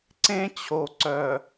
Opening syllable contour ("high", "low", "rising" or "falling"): high